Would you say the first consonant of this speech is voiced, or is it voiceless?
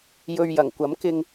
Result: voiced